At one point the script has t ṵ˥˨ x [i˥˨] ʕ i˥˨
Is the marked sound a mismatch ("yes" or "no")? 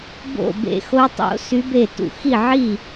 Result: no